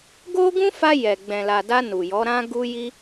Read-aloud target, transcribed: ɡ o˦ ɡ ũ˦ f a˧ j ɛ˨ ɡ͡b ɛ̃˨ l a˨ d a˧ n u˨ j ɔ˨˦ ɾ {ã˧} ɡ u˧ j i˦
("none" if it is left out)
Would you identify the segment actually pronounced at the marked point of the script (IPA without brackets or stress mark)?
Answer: ã˦